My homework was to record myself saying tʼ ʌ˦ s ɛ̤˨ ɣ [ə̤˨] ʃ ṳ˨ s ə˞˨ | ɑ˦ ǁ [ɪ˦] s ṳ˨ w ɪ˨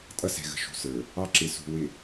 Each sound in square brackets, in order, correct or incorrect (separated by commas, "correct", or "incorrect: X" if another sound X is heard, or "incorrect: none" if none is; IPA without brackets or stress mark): correct, incorrect: ɪ˨